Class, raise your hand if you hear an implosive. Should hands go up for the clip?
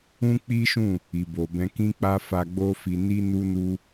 no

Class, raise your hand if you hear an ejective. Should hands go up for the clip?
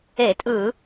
yes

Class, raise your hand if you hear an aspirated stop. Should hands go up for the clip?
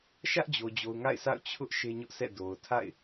yes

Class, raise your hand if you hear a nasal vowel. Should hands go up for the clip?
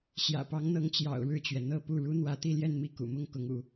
no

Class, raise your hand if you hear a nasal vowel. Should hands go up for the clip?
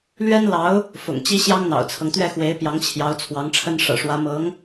no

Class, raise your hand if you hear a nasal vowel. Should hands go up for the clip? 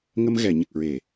no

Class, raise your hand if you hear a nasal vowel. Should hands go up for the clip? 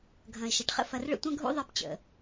yes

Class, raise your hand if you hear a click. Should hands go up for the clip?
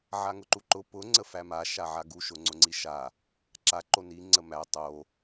yes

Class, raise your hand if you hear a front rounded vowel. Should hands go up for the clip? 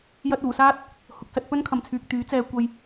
yes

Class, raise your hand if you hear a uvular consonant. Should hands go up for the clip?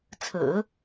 no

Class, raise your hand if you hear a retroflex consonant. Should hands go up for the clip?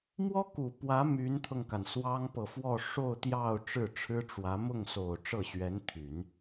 yes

